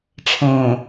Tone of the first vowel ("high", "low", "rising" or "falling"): low